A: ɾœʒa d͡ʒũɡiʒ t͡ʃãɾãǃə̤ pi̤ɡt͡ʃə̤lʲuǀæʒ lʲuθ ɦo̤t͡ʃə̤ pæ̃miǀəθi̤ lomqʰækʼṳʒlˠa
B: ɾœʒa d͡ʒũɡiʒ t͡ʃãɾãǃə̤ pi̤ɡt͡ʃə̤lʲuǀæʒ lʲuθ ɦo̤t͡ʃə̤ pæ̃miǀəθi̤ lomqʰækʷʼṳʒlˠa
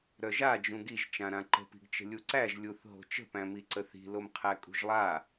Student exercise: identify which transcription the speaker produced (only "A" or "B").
A